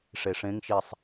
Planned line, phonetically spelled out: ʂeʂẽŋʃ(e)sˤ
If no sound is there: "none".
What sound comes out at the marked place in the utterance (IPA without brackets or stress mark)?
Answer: i